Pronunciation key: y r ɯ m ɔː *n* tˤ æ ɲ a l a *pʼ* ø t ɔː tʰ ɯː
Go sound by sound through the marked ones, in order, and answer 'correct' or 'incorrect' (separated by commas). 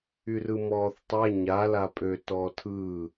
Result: incorrect, correct